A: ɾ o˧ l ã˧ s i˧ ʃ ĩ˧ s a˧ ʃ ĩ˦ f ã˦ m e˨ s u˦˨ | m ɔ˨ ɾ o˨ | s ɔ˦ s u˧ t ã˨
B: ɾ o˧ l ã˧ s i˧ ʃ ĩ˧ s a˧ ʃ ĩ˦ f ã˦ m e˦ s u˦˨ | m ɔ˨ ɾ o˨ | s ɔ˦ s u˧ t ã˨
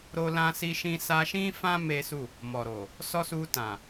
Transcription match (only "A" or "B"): B